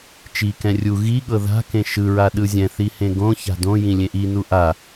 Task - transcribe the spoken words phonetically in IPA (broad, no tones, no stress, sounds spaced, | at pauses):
t͡ʃ i k ɛ̃ rʲ u ɣ i ɠ ɤ ð a̤ k ẽ ʃ ɯ ɹ a ɗ ɯ zʲ ɛ̃ θ i h ẽ ɡ õ ç a̤ d õ j ĩ lʲ ẽ ʔ i n u ʔ a